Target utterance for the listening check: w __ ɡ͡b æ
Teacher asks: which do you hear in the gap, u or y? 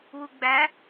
u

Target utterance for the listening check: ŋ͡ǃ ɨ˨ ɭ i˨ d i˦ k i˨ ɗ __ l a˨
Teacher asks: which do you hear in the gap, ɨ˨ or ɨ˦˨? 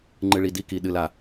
ɨ˨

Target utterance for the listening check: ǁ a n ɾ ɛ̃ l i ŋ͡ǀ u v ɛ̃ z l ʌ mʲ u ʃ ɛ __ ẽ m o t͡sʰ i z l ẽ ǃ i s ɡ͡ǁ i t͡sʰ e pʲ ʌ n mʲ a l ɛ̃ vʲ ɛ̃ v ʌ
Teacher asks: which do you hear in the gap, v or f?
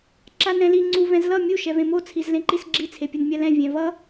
v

